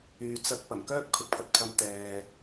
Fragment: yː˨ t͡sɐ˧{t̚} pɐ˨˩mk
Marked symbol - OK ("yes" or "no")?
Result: no